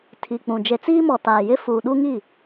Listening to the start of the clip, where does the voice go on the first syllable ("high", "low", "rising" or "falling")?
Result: low